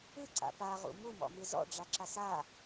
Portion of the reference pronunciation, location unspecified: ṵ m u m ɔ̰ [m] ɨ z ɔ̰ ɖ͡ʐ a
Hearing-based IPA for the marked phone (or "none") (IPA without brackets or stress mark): m